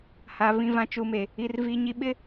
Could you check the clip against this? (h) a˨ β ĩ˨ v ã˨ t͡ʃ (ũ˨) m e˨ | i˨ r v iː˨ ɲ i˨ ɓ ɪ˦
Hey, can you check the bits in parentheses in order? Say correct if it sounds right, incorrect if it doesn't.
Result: correct, incorrect: u˨

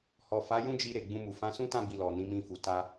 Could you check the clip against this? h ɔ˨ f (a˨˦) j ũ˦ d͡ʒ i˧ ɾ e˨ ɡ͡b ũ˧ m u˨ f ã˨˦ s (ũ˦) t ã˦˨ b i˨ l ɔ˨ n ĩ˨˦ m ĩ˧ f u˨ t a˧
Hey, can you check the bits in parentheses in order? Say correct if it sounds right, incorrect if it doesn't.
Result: correct, correct

